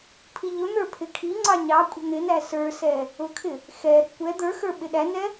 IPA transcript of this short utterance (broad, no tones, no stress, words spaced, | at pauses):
pʰiʎʊn̪ə˞ pʰɪkʰiŋ͡ǀɑ ɲɑkʷʼə̤ n̪ɪnæ sə˞sɛ | ʊkʰɪ | xɛɾə̤ kʷɛ d̪ə˞ xə˞ɓɪɗænɛ